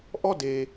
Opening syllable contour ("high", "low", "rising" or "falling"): falling